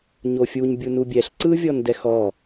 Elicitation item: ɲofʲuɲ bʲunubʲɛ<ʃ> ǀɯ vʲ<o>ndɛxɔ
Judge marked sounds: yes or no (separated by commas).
no, no